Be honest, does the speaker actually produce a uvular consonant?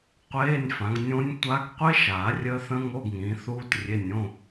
yes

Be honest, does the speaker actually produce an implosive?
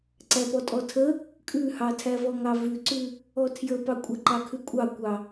no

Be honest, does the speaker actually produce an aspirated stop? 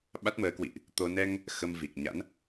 no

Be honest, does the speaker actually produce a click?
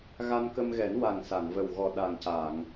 no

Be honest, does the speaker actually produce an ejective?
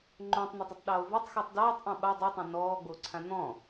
no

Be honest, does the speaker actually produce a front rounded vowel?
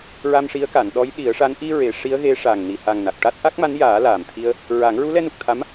no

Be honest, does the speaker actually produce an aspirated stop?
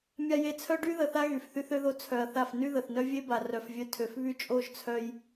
yes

